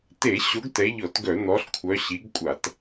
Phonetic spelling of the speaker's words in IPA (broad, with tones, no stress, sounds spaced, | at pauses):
t e˧˩˧ ɕ o˨˦ ɡ t ɛ˨˦ ʎ ɔ˧˩˧ t ɡ œ˧˩˧ n̪ ɔ˨˦ ɬ kʷʰ œ˨˦ ɕ i˨˦ ɡ kʷʼ a˧˩˧ t